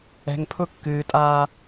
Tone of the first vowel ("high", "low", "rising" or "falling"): low